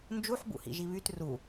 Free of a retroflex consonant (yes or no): yes